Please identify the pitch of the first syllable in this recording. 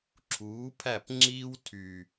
rising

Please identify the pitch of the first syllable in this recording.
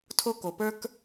high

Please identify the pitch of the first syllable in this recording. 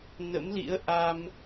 rising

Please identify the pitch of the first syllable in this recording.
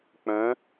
rising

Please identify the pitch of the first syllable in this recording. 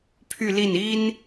falling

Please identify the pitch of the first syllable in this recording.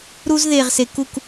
high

